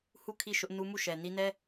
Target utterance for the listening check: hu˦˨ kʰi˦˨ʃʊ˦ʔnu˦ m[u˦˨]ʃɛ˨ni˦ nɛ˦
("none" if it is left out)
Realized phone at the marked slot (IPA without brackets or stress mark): u˦˨